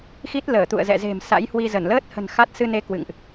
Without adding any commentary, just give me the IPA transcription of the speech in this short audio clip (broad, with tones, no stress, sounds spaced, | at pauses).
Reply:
x i˦˥ t̚ l əː˧˩ t̪ ṵ˧˨ ə̯ z ɛ̰˧˨ z e̤˨˩ m s a̰˧˥ j h w i˧ z ə˧˩ n l əː˦˥ t̚ h ə̤˨˩ n x a˦˥ t̚ s ɨ˧ n e˧ k w ɨ̰˧˨ ŋ ʔ